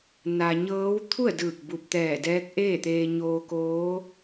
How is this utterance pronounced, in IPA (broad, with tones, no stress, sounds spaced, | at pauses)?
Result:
n a˧ ɲ ɤː˧˥ w t̪ʰ u˥˨ ə̯ d ɯː˧˩ k̚ b u˧˩ p̚ t̪ ɛː˧˩ d ɛː˧˥ k̚ ʔ eː˥˨ t̪ eː˧ ɲ oː˧ k oː˧˥